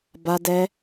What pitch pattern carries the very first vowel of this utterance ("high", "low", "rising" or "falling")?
high